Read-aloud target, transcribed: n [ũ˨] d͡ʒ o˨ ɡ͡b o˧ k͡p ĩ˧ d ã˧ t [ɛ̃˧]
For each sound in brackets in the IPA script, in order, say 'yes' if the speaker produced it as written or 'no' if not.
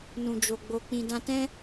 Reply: yes, no

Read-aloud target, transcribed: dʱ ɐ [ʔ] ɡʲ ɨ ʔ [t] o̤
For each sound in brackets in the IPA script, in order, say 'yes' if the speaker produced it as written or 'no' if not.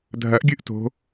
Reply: yes, yes

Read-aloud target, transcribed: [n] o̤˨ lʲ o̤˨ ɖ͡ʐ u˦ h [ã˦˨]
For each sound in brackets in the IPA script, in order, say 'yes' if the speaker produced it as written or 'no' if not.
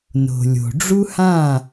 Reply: yes, yes

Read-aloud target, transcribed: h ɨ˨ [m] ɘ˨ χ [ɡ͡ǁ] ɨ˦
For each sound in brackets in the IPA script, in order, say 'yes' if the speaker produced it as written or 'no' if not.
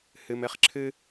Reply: yes, no

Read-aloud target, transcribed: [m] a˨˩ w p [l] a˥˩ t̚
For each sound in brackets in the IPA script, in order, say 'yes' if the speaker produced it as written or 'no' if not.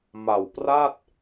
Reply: yes, no

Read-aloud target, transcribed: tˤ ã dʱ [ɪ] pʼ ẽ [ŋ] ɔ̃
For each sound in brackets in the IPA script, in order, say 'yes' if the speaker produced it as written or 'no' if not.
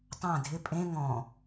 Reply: yes, yes

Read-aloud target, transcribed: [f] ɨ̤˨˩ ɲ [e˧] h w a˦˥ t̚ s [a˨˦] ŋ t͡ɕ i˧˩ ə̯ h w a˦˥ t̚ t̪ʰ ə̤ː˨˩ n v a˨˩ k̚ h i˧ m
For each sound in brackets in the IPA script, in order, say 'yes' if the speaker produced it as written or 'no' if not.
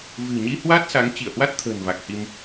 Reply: no, no, yes

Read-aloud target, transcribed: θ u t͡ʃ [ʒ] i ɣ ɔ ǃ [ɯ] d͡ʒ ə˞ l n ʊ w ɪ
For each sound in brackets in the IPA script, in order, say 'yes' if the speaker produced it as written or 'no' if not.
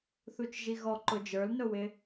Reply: yes, no

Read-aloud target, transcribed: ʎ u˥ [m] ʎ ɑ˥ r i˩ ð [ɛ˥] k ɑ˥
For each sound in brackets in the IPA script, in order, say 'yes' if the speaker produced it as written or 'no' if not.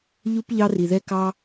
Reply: no, yes

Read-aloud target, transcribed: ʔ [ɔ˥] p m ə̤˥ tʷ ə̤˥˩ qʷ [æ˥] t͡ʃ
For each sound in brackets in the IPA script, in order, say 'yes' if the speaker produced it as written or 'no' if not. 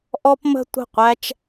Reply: yes, yes

